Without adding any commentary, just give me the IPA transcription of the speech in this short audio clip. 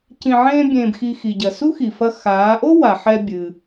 c ĩ˧ ʕ ẽː˥ bʲ ẽː˧ b x i˧ x i˩ ɟ ɐ˩ s u˥ x i˩ f ɐ˧ x aː˩˧ ʔ o˥ w a˩ ħ ɛ˧ bʲ ɨ˩

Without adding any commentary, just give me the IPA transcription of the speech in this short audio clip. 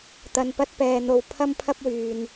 t̪ ɐ˧ n p ɐ˥ t̚ p ɛː˧ n̪ o˧ w pʰ ɐ˥ m pʰ ɐ˥ p̚ w yː˧ n

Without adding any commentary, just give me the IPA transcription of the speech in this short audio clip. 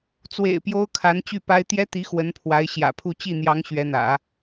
t͡s w ḛ˨˩ ɪ̯ p j o˥ ʊ̯ kʰ a˧˥ n t͡ɕ y˥˩ p a˥ ɪ̯ t̪ j ɛ˥ t̪ i˧˥ x w ə˧˥ n pʰ w a˧˥ ɪ̯ ɕ j ä̰˨˩ pʰ u˥˧ t͡ɕ i˥˩ n̪ j ɑ˧˥ ŋ ɕ ɥ ɛ˧˥ n̪ ä̰˨˩˦

